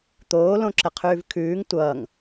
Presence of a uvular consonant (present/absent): present